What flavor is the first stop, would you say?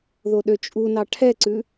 implosive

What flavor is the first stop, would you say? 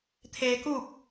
aspirated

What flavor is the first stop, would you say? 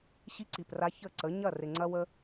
click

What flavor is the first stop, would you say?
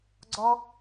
click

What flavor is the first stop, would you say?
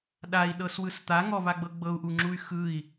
implosive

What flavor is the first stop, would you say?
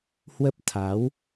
plain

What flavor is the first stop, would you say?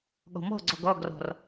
implosive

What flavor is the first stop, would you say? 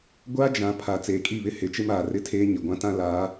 plain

